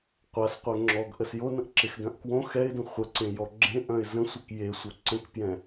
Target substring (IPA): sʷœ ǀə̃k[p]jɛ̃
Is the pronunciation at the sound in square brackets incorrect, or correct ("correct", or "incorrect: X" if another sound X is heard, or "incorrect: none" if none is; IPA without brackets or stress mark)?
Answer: correct